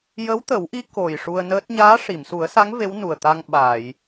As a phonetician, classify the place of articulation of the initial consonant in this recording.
palatal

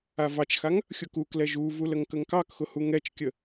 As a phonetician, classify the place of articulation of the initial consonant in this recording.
labial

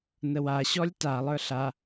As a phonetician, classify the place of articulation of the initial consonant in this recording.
alveolar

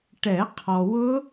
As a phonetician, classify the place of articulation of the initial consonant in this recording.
retroflex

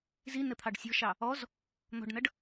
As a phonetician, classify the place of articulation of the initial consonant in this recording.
alveolar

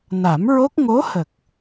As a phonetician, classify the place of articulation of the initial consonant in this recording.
alveolar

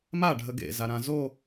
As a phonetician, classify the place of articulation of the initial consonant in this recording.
labial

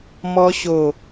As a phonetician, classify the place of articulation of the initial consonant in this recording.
labial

